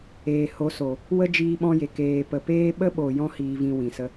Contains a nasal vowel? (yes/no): yes